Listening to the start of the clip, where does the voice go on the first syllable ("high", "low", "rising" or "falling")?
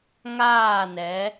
falling